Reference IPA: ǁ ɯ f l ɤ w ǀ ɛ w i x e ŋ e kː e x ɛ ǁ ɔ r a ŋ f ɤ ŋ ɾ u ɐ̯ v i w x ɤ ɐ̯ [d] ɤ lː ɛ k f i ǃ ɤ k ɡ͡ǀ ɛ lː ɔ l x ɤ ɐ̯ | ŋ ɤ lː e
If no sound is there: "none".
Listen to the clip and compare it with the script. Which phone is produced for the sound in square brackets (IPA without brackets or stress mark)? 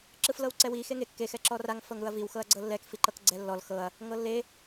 ɡ͡ǀ